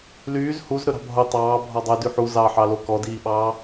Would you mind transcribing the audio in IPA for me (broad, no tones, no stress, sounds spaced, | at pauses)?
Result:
l yː z h u z ɾ ɵ ɾ ɑ̤ bʱ o tˤ ɑː bʱ ɔ dˤ ɵ d y ħ u z ɑ ħ ɑ l o k ɔ d iː ɓ ɑː